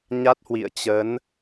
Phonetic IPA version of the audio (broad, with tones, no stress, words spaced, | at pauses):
ɲa˦˥t̚hwḭ˧˨ə̯ t͡ɕə˨˦n